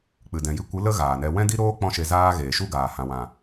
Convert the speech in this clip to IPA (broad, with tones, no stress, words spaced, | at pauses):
k͡pɨ˨dɛ̃˨ji˧kʷɨ˨˦ lə˦ ɣaː˨nɛ˧ wɛ̃˦di˦ɾoː˦ k͡pɔ̃˦ʃe˧ zaː˧ ɣeː˨ʃu˦ ɡaː˨ hã˨wã˨